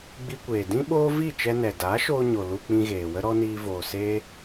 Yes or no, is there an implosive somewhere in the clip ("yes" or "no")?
yes